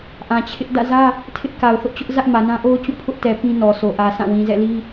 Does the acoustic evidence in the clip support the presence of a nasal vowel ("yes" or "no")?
yes